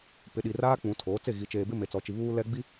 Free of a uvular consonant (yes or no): yes